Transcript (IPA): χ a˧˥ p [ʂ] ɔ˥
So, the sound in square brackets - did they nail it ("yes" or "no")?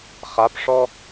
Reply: yes